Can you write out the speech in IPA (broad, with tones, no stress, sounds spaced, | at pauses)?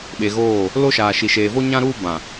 ɓ e˨ ɣ oː˦˨ | l o˦ ʃ aː˨ ʃ i˨ ʃ eː˨ v o˦ ɲ ã˦ ɾ uː˦ b ã˨